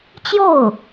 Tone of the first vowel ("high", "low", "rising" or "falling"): falling